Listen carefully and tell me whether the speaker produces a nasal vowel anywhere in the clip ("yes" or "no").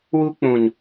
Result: yes